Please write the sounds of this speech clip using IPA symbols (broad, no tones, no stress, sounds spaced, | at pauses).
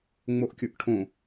ŋ͡m o ʔ kʲ ʊ ʔ ʈʰ õ